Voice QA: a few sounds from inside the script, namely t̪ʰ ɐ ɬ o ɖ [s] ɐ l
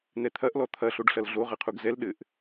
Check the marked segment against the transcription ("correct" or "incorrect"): incorrect